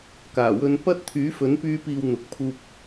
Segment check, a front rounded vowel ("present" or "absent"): present